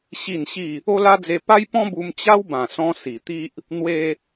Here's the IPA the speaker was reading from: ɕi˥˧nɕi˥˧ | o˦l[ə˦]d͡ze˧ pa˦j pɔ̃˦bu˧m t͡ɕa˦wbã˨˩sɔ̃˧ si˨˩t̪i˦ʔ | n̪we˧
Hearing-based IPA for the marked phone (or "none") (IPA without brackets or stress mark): a˦